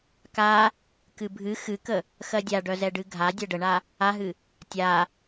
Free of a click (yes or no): yes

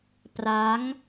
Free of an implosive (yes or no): yes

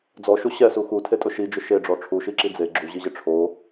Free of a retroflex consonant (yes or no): no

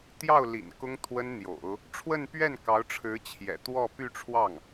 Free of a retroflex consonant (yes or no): no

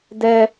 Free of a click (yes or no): yes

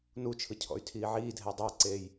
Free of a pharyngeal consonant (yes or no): no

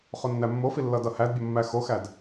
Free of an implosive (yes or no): yes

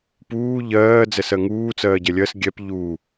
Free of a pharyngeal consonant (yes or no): yes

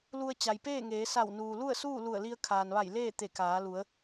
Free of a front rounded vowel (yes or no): yes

